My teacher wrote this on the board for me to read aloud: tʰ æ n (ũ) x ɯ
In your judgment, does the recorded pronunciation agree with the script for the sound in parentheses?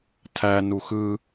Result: no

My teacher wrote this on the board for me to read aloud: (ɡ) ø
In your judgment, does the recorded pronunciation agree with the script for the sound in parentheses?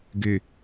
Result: yes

